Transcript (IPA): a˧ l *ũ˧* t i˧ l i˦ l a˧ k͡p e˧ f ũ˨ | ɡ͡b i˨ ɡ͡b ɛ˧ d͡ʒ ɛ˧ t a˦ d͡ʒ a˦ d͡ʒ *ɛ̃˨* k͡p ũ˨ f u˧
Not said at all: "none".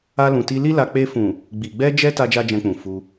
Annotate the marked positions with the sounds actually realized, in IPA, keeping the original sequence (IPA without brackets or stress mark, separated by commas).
ũ˨, ɛ̃˧